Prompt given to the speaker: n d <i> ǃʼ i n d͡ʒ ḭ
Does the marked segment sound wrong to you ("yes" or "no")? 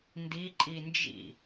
no